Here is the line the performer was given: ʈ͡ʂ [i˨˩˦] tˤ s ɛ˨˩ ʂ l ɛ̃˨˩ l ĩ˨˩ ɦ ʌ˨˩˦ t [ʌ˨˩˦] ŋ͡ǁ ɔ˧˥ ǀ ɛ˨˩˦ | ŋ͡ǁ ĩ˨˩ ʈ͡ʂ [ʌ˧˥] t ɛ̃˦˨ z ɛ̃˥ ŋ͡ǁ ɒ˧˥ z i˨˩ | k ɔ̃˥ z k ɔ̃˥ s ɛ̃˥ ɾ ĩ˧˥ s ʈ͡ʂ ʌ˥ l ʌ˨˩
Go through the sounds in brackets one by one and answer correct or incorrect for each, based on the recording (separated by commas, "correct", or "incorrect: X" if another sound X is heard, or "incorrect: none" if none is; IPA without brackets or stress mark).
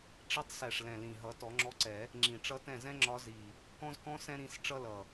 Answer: incorrect: i˧˥, incorrect: ɔ˨˩˦, correct